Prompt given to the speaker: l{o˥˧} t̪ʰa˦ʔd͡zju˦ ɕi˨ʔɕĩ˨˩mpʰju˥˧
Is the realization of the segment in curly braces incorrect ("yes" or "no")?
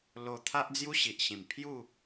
yes